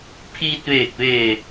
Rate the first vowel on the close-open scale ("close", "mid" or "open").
close